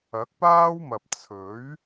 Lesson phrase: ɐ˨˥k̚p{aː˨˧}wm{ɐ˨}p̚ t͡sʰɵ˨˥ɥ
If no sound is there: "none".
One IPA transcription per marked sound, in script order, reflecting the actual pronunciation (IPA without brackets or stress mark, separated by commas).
aː˥, ɐ˨